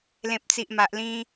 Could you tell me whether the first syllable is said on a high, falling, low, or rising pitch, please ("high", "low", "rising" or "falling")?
low